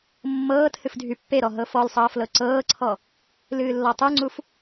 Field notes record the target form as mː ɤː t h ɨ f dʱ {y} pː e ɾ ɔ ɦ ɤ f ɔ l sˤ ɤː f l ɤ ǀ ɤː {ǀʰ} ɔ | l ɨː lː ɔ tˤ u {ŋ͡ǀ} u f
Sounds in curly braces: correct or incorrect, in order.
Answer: correct, correct, correct

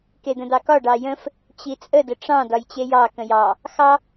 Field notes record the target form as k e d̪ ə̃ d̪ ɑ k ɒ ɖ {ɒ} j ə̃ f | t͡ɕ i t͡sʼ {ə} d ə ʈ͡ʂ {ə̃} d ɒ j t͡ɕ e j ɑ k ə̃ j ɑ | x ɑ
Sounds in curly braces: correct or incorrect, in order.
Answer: incorrect, correct, incorrect

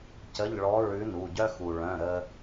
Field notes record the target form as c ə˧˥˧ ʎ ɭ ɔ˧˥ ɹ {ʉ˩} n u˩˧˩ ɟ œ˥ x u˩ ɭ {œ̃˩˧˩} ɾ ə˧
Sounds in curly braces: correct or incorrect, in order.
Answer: incorrect, correct

